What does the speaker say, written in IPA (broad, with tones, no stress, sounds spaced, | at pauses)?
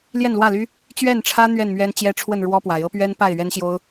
l j ɛ˥˨ n l w ä˥˨ l y˦ | t͡ɕ ɥ ɛ˥˨ n ʈ͡ʂʰ ä˦ n̪ ɥ ɛ˥˨ n m ɥ ɛ˦ n t͡ɕ j ɛ˦ ʈ͡ʂʰ w ə˥˨ n ɻ w ɔ˦ p w a˨˦ ɪ̯ ɤ˦ p ɥ ɛ˦ n p a˥˨ ɪ̯ ɥ ɛ˦ n ɕ j o˦ ʊ̯